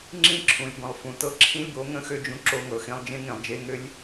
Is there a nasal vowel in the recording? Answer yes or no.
yes